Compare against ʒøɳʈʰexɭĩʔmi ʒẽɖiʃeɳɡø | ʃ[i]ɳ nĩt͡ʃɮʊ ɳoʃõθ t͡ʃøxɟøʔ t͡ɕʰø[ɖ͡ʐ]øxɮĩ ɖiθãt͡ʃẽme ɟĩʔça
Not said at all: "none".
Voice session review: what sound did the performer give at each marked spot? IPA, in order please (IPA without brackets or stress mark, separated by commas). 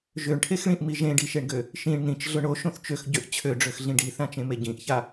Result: ĩ, ɖ͡ʐ